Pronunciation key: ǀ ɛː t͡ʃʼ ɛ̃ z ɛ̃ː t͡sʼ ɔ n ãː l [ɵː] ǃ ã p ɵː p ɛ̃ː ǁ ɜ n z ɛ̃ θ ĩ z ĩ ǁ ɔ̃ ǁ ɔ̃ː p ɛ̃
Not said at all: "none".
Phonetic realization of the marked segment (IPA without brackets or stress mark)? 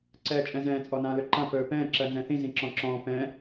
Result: ɵ